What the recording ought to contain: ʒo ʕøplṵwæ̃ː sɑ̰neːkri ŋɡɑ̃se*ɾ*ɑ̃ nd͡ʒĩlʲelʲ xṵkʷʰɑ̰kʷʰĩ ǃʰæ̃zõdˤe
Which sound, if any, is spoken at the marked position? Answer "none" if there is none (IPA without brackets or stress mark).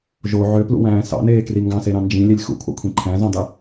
ɾ